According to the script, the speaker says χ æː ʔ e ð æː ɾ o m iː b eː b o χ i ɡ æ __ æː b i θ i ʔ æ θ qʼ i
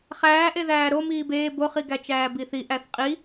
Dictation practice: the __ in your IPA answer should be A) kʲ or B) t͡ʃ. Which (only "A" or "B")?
B